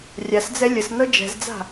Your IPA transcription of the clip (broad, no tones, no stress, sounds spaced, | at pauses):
rʲ a s d͡z ɛ lʲ ə s n ɤ d͡ʒ ɛ̤ z d͡z a̤